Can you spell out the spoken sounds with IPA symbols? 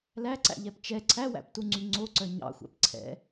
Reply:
læǀæ̰ʎɛp t͡ʃɛ ǀʰæwæ̰ptuŋ͡ǀy ŋ͡ǀoǀœ ɲɑ̰xʷæ̰p ǀʰɛ̰

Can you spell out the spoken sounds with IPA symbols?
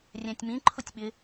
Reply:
rʲæ̃tʲmĩ ǃʰʊtʲɓɪ

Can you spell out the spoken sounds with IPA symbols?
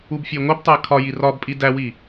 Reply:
ubfʲeŋʷebtˤæ kʰɒji rɒbpʼi dæwi

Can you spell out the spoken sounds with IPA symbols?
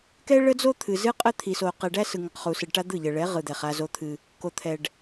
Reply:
kɛ˦ɭə˦d͡zo˦ t̪ʰɨ˨zɨ˦qʼə˦ t̪ʰi˨so˨ qɛ˨ɖæ˦sɯ˨ ŋə˨qχu˨sɨ˨ɖ ʈa˦ d̪ɯ˦˨ʎə˨ɭɛ˨˦ ʁɯ˨d̪ɛ˨χ a˦zo˦t̪ʰɨ˦ | ko˨t̪ʰɛ˨ɖ

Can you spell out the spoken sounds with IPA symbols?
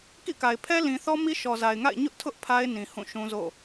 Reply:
kḭ˦˨ka˨ɪ̯ pʰɛ˦lĩ˨θɔ˦mi˦ ʃɔ˨za˨ɪ̯ŋa̰˦˨ɪ̯ ɲʊ˦ʔtʰʊ˦ʔ pʰa˦ɪ̯ nĩ˨ hũ˦˨ʃũ˦zo̰˦˨

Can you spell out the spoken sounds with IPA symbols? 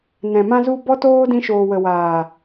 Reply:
nɛ̃˨mã˧zu˧ bɔ˦ toː˦ dĩ˧ʃoː˨wə˨ waː˨

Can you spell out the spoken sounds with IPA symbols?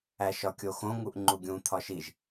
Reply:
æʃɒkʲoxõ ŋuʔŋ͡ǃuɡʲũ t̪ʰɒʃiʒ

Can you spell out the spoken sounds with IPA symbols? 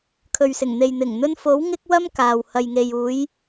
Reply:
kʰɵ˨ɥsɪ˨˩ŋn̪e˨j n̪ɪ˨˩ŋn̪ɵ˧n fo˨˥w ŋɪ˧k̚ wɐ˥mkaː˨w hɐ˨jŋe˨juː˨˧j

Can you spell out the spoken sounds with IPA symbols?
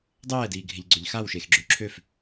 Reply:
dˤɛːdiːɡʱɪʎɡ͡ǀøʎ xawʃexɡ͡ǁø ǁʰøf

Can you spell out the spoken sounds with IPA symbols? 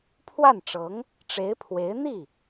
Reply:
pʰwa˥˩nʈ͡ʂɤ˧˥ŋ | ʈ͡ʂe˧˥ɪ̯pʰwe˧˥ɪ̯ n̪i˥˩

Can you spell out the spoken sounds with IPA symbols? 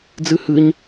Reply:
d͡zɨhɨɲ

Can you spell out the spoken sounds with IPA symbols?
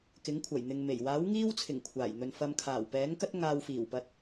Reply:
kɪ˨˥ŋkʷʰɐ˨˩jn̪ɪ˨ŋme˨˩j waː˨˥wŋiː˥wt͡sʰɪ˨˩ŋ kʷʰaː˨˩jn̪ɵ˨nfɐ˧m kʰaː˨˩wpɛː˨˥ŋkɐ˥t̚ ŋaː˧w fiː˨˩wpɐ˨˥t̚

